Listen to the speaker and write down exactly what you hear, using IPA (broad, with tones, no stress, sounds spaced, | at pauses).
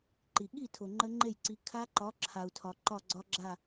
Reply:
ǃ i˩ ɠ i˥˩ tʰ o˩ ŋ͡ǃ ə˦˥ ŋ͡ǃ e˥˩ j ǀ i˨˥ kʰ a˦˥ ǃ ɒ˨˥ ǁʰ a˩ u̯ tʰ ɒ˩ ǃ ɒ˥˩ ɡ͡ǀ ɒ˦˥ ɡ͡ǁ a˥˩